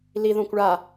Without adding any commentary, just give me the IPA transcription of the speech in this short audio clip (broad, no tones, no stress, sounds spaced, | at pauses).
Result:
l i ð õ kʷ ɭ a